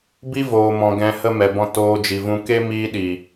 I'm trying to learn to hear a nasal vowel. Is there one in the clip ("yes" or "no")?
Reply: yes